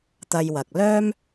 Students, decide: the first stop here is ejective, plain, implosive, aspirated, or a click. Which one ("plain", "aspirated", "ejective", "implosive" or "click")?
plain